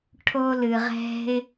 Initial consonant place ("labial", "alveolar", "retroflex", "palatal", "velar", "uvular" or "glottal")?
retroflex